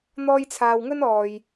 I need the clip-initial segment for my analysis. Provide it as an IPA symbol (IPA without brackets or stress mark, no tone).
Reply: n̪